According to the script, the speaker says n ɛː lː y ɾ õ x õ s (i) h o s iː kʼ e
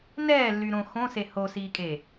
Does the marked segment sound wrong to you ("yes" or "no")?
yes